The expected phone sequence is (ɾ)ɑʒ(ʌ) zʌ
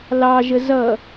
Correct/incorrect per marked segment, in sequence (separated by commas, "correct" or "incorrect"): incorrect, incorrect